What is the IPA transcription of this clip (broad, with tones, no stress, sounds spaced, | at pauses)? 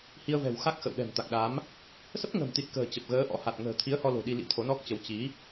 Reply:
h i˧ ə̯ v ɛ̤˨˩ w x a˦˥ k̚ x ə̰˧˨ w ɗ ɛ̤˨˩ m t̪ a˨˩ k̚ ɗ aː˨˦ m | s ə˦˥ p̚ ŋ ə̤˨˩ m t̪ i˨˩ t̚ k ə̤ː˨˩ t͡ɕ ə˨˩ p̚ ɣ əː˨˦ ʔ ɔ̰˧˥ h a˨˩ t̚ ŋ ə̤ː˨˩ t̪ʰ i˨˦ ə̯ h ɔ˧ l o̤˨˩ ɗ i˧ l ḭ˧˥ t̪ʰ o˨˦ n ɔ˦˥ k̚ t͡ɕ ə˨˦ w t͡ɕ i˨˦